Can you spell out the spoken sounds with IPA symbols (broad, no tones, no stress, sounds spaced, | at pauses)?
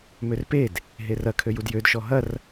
m ø r p e d | ɦ e r ɐ kʰ ø j u d j ø d ʃ ɔ ɦ ɐ r